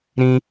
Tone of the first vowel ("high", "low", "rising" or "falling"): high